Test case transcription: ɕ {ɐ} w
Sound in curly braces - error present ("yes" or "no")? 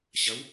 no